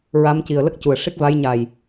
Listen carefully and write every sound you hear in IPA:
ɹa˧˥m ci˨˩ə̯lə˦˥k̚cu˨˩ə̯ ʂi˦˥k̚va˧˥j ɲa˨˩j

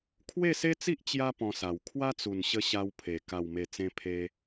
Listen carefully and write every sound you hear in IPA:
kʰwe˥˧se˦t͡si˦ʔ t͡ɕja˦ pɔ̃˧sa˨˩w kʰwa˦t͡su˨˩nɕə˧ ɕa˧wpʰe˨˩ ka˨˩wme˨˩ t͡sẽ˧pʰe˧

